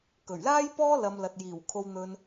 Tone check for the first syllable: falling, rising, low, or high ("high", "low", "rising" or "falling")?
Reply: low